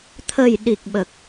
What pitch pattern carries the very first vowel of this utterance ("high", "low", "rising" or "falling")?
low